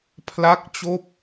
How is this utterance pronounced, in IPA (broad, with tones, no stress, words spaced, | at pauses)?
pʰla˥˩k̚t͡ɕoː˥˩p̚